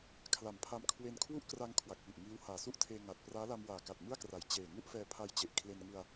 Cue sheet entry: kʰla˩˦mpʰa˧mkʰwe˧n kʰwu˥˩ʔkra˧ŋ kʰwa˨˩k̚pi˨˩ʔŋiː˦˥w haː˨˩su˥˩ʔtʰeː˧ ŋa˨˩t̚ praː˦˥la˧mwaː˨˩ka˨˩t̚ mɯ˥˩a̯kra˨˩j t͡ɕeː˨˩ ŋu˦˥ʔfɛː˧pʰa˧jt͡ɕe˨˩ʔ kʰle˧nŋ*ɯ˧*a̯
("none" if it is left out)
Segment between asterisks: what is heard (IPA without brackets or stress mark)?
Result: ɯ˧